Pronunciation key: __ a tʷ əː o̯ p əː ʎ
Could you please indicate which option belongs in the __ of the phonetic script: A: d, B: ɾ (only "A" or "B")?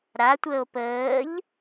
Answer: B